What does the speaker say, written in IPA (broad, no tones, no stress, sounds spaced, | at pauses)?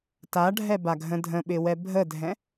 t a ɖʱ ɛ b a ɡʱ ə̃ dʱ ə̃ ɓ ɪ w ɛ bʱ ə dʱ ɛ̃